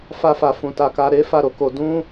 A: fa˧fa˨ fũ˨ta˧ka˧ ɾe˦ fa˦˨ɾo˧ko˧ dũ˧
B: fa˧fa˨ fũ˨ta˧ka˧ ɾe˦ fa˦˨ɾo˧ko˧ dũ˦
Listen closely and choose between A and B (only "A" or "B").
B